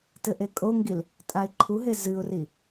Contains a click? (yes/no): yes